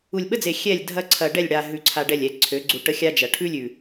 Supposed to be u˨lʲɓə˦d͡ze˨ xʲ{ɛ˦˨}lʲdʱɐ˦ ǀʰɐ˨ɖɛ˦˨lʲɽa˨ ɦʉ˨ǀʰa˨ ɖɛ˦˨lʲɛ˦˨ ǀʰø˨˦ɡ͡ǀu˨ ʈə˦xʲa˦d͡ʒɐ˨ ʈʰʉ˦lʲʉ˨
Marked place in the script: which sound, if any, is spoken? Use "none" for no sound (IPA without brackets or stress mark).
ɛ˦˨